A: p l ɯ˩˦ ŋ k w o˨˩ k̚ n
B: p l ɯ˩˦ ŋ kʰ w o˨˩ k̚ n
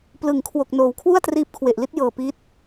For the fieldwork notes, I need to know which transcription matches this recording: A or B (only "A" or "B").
B